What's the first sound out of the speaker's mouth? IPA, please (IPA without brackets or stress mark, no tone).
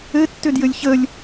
ɘ